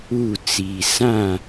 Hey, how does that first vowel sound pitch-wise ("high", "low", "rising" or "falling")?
falling